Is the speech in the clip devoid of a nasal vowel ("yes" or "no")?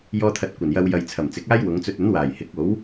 yes